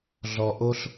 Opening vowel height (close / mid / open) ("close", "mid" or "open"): mid